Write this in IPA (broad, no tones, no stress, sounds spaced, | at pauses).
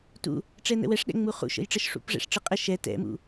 t ṵ | ʈ͡ʂ ɛ n ə̰ w ɛ ʂ ɗ ɛ̰ ŋ͡m u χ ṵ ʃ ə̰ j ʈ͡ʂ ə ʃ ʂ ṵ p ʐ ɛ̰ ʂ ʈ͡ʂ ɯ qʼ ɘ ʃ ɛ t ɛ̰ m ṵ